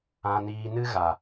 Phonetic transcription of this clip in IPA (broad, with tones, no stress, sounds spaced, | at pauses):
ã˧ n iː˧ n ɨ˦ ɣ a˨